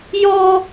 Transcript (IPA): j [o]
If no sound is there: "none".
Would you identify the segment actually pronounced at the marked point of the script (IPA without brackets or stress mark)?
ɔ